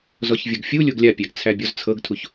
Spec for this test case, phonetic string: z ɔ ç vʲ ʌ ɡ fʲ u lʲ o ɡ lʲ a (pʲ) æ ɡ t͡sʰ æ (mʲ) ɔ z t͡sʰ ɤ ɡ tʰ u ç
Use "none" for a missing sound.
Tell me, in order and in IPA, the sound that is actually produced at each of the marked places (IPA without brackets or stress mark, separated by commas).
pʲ, bʲ